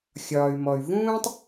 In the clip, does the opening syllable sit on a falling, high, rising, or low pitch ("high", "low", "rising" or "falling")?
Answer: low